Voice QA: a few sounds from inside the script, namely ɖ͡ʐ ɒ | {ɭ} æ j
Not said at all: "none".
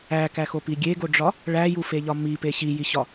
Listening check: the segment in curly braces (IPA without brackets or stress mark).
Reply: ɭ